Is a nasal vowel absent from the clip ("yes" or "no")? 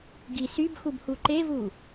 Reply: yes